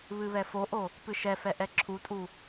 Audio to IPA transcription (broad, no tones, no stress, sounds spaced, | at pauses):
β ɨ β ɛ f o ʔ o | p ɨ ʃ ɛ f ɛ ʔ ɛ ǁʰ u tʼ u